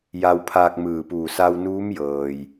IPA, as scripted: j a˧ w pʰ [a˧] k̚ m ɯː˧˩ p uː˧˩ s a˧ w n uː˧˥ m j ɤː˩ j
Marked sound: incorrect: aː˧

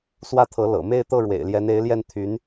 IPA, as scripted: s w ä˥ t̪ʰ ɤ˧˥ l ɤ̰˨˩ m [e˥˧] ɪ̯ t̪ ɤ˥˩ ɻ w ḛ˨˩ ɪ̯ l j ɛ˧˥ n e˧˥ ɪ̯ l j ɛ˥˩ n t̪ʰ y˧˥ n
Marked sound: correct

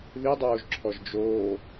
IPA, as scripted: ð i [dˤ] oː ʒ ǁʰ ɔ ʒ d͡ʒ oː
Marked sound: correct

